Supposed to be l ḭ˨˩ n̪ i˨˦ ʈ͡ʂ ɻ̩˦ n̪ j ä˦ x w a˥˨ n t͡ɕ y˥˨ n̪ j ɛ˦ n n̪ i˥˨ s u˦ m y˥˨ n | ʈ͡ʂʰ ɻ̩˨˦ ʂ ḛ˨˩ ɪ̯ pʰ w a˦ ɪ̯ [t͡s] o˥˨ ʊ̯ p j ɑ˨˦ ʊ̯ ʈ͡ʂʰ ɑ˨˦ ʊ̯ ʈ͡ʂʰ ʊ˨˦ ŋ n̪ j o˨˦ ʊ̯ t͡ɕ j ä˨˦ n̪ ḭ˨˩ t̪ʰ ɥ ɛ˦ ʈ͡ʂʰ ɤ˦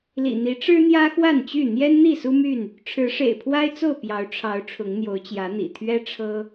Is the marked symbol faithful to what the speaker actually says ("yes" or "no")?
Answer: yes